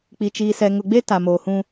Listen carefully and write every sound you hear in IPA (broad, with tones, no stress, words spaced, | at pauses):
k͡pi˨t͡ʃiː˨sɛ˨ ŋʊ˨ɡ͡be˦ ta˨moː˨hũ˦